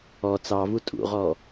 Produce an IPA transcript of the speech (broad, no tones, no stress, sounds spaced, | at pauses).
ɔ t͡s ɑ v u tʼ ṵ ʁ ɔ